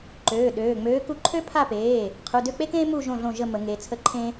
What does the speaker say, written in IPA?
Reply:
ǃ øː˩˧˩ ɗ øː˩˧˩ ŋ͡m øː˨˥ k u˨˥ ǃʰ ø˦ pʰ a˦˨ p eː˩˧˩ | qʰ u˩˧˩ d ø˦˨ k͡p e˦ k ẽː˦ m u˦˨ ʒ õ˦˨ ɮ õ˦˨ ʒ ə˦˨ m ə˨˩˦ ŋ e˩˧˩ t͡sʰ ə˦ ǃʰ ẽ˦

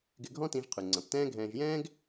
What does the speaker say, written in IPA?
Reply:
ɡ ɪ˧ ɡʱ ɔ̃˥ t ĩ˧ ʒ qʰ ʉ˩ ŋ͡ǀ ɐ̃˩ p t ɛ̃ː˥ ɡʱ ɛ̃ː˧ ʒ j ɛ̃ː˥ ɡ

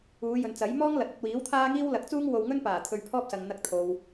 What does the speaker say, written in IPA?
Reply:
uː˨˧ j ɵ˨ n t͡s ɐ˨˥ j m ɔː˥ ŋ l ɐ˨ t̚ ɐ˧ t̚ w iː˨˥ w t̪ʰ aː˥ ŋ iː˥ w l ɐ˨˥ k̚ t͡s uː˥ ŋ w o˧ w ŋ ɵ˥ n p aː˨˩ t̪ʰ ɵ˧ ɥ pʰ ɔː˥ p̚ s ɐ˨ ŋ n̪ ɐ˧ k̚ t̪ʰ o˨ w

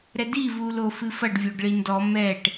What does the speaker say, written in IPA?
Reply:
ɾ ɛ d i v u l o f ɨ f ɐ ɖ vʲ o ɖ ɭ i n d ɔ m ɛ ʈ

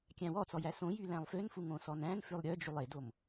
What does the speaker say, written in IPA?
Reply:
kʲ æ̃ w ɔ t͡s ɔ j æ s õ j y l æ̃ lˠ f ø n f u ŋ õ s ɔ n æ̃ n f ʉ lˠ ɾʲ œ d͡ʒ u lˠ e d o m

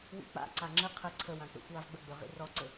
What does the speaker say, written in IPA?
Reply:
w ḭ k͡p a̰ ǀ a ŋ͡ǁ ə qʰ ə ǀʰ ə w ã k͡p ɛ̰ xʷ w a v ɡ͡b ə ɡ͡b ø ʁ ḭ r ɔ ǀ ɵ

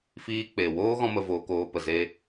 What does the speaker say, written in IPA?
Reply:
f iː˧ k͡p e˨ w oː˦ ɣ ɔ̃˦ m ə˧ v oː˧ k oː˧ p ə˨ z e˧

